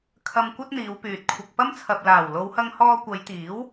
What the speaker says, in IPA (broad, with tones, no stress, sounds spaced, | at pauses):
kʰ ɐ˧ m kʷ ɐ˥ t̚ n̪ iː˨˧ w p yː˨ t̚ kʷʰ ɐ˧ k̚ p ɐ˥ m t͡sʰ ɐ˨ p̚ l aː˨˩ w l o˨˧ w h ɐ˧ ŋ h ɔː˧ kʷ ɐ˨˧ j t̪ iː˨˥ w